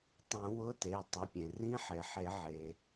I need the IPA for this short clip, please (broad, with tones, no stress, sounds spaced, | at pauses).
tˤ ũ˨˩˦ w ʊ˧˥˧ t e˩˧˩ tˤ ʊ˩˧˩ pʲ ẽ˩ r ĩ˧˥˧ ħ e˩ ħ e˨˩˦ ʕ e˩